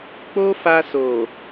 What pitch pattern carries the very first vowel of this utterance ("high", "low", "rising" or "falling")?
high